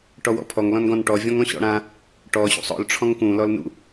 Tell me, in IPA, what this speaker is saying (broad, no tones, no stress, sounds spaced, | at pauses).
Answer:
ʈ ɔ w ɔ̰ pʰ ɔ ŋ l ɔ̃ n ɡ ɔ̃ n ʈ ɔ vʲ ɔ̃ ŋ ɔ̃ ɕ ɔ̰ ɽ ã | ʈ ɔ ɕ ṵ sˤ ɔ̰ l ʈ͡ʂʰ ɔ̃ ŋ k ũ l ɔ l n ṵ